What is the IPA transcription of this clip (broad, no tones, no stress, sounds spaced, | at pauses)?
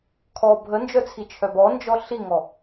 kʰ ɔ bʱ ə n d͡ʒ œ t͡sʰ i t͡ʃʰ œ b ɔ n d͡ʒ ɔ ɬ i ŋ ɔ